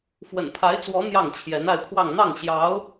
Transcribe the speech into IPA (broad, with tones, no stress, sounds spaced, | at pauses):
f w ə̰˨˩ n pʰ a˧˥ ɪ̯ t͡s w ɔ˧˥ n̪ j ɑ˥˩ ŋ t͡ɕʰ j ɛ˧˥ n a˥˧ ɪ̯ pʰ w ɑ˥˧ ŋ n̪ ɑ˥˩ ŋ ɕ j ɑ˧˥ ʊ̯